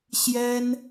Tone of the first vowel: high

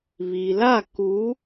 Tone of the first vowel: low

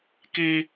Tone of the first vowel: high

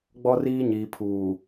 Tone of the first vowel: high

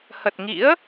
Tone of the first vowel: low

